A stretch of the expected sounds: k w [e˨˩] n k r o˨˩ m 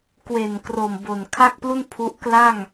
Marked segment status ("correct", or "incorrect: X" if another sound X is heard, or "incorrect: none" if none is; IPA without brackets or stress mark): correct